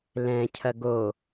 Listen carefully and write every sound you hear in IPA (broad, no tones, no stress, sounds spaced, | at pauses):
l ɛ̃ cʰ ɐ ɡ o